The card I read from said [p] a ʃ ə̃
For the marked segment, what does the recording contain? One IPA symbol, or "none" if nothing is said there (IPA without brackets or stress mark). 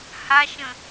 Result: h